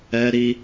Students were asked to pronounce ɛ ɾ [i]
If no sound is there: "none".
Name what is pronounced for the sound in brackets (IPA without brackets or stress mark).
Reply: i